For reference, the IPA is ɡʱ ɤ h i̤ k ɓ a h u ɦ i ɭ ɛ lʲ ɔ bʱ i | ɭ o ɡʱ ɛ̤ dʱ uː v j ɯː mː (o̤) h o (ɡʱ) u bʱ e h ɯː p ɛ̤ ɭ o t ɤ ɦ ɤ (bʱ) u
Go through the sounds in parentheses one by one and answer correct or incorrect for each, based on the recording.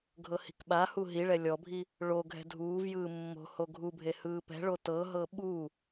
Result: correct, correct, incorrect: ɓ

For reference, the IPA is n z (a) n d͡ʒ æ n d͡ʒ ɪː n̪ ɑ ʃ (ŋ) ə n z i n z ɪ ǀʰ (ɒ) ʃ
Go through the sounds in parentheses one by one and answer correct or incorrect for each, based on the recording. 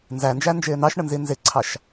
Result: incorrect: æ, incorrect: ɳ, incorrect: ɑ

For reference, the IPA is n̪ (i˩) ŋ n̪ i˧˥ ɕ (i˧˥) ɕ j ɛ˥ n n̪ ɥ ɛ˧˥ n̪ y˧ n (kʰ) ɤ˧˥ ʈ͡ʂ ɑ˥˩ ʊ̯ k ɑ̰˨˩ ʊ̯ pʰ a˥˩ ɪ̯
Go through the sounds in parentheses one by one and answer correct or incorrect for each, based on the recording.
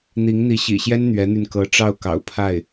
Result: incorrect: i˧˥, incorrect: ḭ˨˩, incorrect: k

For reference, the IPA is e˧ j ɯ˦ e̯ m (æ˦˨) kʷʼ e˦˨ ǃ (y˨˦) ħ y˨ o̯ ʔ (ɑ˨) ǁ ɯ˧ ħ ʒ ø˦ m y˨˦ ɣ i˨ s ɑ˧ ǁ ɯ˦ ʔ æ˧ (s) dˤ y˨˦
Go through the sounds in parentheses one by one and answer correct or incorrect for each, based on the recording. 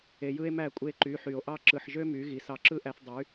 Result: correct, correct, incorrect: ɑ˦, incorrect: θ

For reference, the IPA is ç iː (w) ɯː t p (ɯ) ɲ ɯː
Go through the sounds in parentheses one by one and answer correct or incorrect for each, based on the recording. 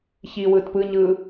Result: correct, correct

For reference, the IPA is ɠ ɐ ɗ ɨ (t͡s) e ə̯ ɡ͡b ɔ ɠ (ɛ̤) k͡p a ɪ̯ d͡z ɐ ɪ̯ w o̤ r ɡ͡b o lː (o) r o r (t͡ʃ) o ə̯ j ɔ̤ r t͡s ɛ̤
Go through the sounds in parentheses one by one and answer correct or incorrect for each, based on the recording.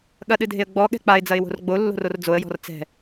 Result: incorrect: dʱ, correct, incorrect: o̤, incorrect: d͡z

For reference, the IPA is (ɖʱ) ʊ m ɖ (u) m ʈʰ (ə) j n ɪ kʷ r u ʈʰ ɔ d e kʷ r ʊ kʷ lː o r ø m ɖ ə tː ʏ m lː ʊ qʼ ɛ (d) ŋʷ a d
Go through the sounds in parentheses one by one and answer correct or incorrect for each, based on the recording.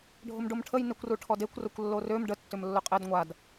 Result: correct, incorrect: o, correct, correct

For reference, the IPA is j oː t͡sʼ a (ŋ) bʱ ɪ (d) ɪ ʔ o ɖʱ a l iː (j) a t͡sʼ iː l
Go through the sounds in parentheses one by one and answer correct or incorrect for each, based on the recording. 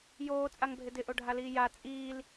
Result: correct, correct, correct

